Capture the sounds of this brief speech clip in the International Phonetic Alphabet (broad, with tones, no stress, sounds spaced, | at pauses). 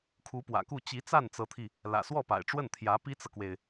kʰ u˧˥ p w ä̰˨˩ k u˥˩ t͡ɕ i˧˥ t͡s a˥˩ n t͡s ɤ˧˥ t̪ʰ i˧ | l ä̰˨˩ s w ɔ˥˩ p a̰˨˩ ɪ̯ ʈ͡ʂ w ə˥˩ n t̪ʰ j ä˧˥ p i˥ t͡s ɤ˨ k w e˩ ɪ̯